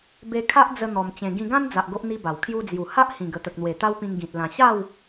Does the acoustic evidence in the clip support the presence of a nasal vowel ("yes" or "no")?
yes